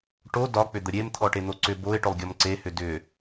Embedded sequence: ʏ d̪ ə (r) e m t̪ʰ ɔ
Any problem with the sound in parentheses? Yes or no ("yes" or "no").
yes